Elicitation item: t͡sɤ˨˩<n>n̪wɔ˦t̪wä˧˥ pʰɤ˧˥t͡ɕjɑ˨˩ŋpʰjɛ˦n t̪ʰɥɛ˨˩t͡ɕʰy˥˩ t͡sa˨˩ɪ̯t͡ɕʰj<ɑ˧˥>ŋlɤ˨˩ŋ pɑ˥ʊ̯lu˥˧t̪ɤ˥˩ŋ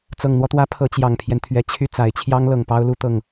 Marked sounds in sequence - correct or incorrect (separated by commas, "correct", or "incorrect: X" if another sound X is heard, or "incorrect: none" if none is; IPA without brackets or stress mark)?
incorrect: ŋ, incorrect: ɑ˥